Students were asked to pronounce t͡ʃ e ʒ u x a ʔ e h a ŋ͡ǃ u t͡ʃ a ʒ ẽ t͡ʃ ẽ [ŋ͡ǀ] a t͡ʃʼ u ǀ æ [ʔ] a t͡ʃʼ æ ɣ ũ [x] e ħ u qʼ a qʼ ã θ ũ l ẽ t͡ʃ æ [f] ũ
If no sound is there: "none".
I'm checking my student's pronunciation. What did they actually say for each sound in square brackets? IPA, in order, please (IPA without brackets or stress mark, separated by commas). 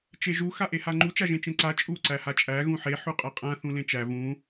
ǀ, h, ħ, v